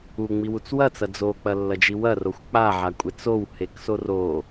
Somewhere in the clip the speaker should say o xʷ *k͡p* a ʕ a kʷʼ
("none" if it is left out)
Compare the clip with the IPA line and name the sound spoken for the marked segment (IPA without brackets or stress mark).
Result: k͡p